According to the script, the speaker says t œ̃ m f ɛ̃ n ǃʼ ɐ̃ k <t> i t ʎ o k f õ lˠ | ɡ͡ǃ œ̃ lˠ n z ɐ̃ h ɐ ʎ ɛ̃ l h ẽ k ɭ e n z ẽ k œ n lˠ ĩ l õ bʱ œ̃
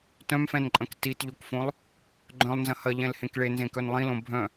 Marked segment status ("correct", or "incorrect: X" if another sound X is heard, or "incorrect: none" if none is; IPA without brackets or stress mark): correct